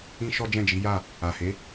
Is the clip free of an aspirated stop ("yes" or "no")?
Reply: yes